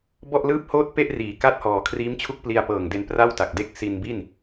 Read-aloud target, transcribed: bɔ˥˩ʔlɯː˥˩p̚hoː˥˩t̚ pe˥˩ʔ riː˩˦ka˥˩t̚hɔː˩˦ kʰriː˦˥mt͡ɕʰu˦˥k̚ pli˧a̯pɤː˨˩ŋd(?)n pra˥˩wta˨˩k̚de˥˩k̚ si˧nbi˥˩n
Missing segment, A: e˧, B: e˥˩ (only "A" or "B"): A